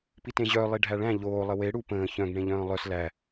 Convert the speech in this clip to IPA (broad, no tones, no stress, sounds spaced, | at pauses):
p i t ẽ ʑ œ lˠ i ɖʱ æ ɭ æ̃ ʎ oː lˠ ə w e ɽ u p ə̃ː ç œ̃ ɡ ɳ ẽ ʎ œ̃ː lˠ œ s l æ